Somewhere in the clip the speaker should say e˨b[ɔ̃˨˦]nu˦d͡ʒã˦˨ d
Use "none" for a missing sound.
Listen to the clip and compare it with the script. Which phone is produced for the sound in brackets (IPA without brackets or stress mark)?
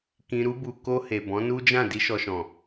ɔ̃˨˦